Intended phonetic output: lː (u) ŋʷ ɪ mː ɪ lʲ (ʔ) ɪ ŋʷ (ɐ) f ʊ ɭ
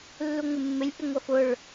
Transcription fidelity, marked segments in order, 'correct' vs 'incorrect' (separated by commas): correct, correct, correct